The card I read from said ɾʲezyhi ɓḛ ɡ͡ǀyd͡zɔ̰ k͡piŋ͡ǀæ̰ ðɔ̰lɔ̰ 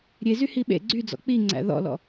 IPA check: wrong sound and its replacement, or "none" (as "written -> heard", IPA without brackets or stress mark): none